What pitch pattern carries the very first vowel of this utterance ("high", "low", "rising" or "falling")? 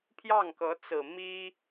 falling